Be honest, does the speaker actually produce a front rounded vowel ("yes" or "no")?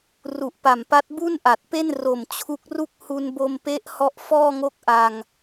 no